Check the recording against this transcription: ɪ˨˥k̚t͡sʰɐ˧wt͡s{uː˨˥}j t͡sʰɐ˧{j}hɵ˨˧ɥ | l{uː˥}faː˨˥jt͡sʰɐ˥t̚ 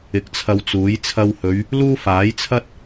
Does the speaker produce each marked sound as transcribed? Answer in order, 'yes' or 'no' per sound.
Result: yes, no, yes

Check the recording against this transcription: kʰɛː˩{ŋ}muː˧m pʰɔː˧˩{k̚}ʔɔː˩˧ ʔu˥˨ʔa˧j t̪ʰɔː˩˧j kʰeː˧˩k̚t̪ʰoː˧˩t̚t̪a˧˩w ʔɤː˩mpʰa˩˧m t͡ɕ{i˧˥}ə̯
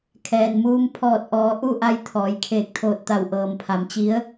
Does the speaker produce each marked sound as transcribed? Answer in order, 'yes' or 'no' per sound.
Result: no, no, yes

